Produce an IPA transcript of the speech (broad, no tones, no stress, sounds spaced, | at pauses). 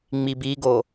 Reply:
ŋ͡m i b i ɡ o